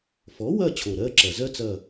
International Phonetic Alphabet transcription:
f ɔ˩˥ w ɐ˦˨ t͡ɕʰ o˨˩ ɾ ɜ˧˥˧ ǁ ɐ˨˩ z ɜ˥ t͡s ɐ˦˨

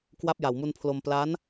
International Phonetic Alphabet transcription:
k w a˦˥ p̚ j a˨˩ w m u˧ n pʰ l o˧ m p l a˦˥ n

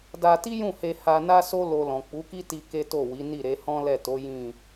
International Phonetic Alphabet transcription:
d a˧ t i˦ j ũ˦˨ h e˧ h a˧ n a˦ s o˦ l o˧ l ɔ̃˨ k͡p u˨˦ k i˦ t i˧ k e˦ t o˦˨ w i˨˦ n i˦˨ ɾ e˨˦ h ɔ̃˦ l ɛ˦˨ t o˨˦ j ĩ˦˨

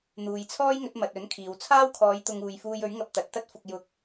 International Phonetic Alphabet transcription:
n̪ uː˨ j t͡sʰ ɔː˥ j ŋ ɵ˨˥ t̚ m ɐ˨ t̚ ɵ˨˥ n kʰ iː˨ w t͡sʰ aː˥ w kʰ ɔː˨˧ j t̪ ʊ˧ ŋ uː˨ j f uː˧ j ɵ˨˥ ɥ ŋ ɐ˧ p̚ t̪ ɐ˨ t̚ t̪ ɐ˥ t̚ f ʊ˧ k̚ j ʊ˧ k̚

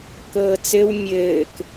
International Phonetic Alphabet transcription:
k ɤː t͡s ɘ w mʲ ɘː k

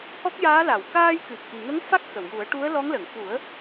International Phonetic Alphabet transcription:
h ɔ˦˥ k̚ j aː˧˥ l a˨˩˨ w k aː˧ j k ɨ˨˩ p̚ ʔ i˨˩ ŋ ə˧˥ ŋ f a˦˥ k̚ x ə˨˩˨ w j u˨˩˦ ə̯ ʈ u˧˥ ə̯ l ɔ˧˥ ŋ l ə˨˩˨ ŋ f u˨˩˦ ə̯

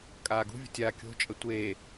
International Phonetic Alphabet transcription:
kʼ aː ɡ ṳ vʲ ə̤ tʲ aː kʲ o̤ t͡ʃʼ ə tʷ eː

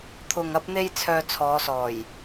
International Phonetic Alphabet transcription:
t̪ʰ ʊ˨ ŋ ɐ˧ p̚ n̪ e˧ j t͡sʰ œː˧ t͡sʰ ɔː˨˧ s ɔː˨˩ j

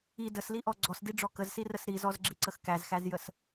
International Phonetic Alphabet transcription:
i d ə s l i ʔ ɔ ɡ͡ǀ ɔ s d i ɖ͡ʐ ɔ k ə z s i r ə s ɾ i z ɔ z ɡ͡ǁ i ǀ ə x k æ z x æ z j ə s

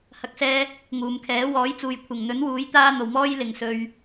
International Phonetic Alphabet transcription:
h ɐ˨˥ k̚ s ɛː˧ | ŋ uː˨ m kʰ ɛː˨˥ w ɔː˨˥ j t͡s uː˨ j kʷʰ ɪ˨˩ ŋ n̪ ɵ˨˥ n w uː˨˥ j t̪ aː˥ n̪ o˨˩ w m ɔː˥ j l ɪ˨˩ ŋ s ɵ˨ ɥ

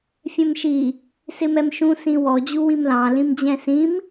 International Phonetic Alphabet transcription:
fʲ ɛ̃ m ʃ i | s ɪ m ɛ m ʃ ũ s ĩ w ɔ d͡ʑ u w ĩ m l ɑ̃ l ĩ m d͡ʑ ɛ̃ s ĩ m

